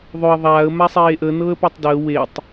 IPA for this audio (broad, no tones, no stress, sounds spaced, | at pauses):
ðˤ ɵ ə̯ ðˤ aː ə̯ m a sˤ eː ʔ ə n ɤː ə̯ p a tˤ d əː w e tˤ